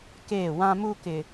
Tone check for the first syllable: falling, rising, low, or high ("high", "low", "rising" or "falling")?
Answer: falling